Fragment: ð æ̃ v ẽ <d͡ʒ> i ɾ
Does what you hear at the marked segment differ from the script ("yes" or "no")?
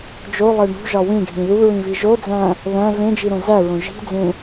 no